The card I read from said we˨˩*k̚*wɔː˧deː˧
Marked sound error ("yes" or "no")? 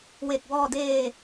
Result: no